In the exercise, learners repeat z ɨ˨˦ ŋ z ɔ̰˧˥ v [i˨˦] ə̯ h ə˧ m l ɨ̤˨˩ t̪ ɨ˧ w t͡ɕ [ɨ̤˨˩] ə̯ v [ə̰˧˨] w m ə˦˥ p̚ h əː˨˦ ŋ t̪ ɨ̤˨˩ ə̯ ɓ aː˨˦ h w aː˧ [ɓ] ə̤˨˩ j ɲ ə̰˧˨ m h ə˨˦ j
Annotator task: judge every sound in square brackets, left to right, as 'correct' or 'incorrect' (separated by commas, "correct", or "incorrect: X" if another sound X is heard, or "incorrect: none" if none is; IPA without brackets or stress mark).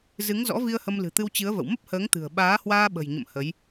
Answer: incorrect: i˧, incorrect: ɨ˨˦, correct, correct